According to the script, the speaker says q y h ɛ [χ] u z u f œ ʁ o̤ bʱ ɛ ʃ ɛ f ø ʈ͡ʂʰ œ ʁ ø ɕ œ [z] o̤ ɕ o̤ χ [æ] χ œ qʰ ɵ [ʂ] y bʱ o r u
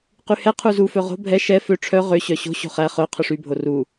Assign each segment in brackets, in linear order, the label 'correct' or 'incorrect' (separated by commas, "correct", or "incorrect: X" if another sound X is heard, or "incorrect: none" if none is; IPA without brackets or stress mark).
incorrect: qʰ, incorrect: ɕ, correct, correct